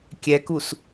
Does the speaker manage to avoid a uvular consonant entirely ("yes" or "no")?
yes